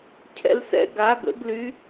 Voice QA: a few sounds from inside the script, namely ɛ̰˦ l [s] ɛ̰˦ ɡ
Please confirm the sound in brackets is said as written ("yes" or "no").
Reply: yes